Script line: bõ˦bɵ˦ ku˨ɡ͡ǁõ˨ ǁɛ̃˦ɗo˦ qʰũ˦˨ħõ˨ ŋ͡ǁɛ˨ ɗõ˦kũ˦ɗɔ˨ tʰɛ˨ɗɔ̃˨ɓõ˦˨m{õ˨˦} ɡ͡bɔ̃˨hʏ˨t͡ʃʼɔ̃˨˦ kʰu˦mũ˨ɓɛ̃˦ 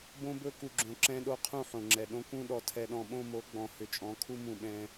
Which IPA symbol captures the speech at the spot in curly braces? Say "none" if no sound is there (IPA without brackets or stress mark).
o˨˦